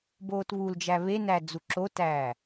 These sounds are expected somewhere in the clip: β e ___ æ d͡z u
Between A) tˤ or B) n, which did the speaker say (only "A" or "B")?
B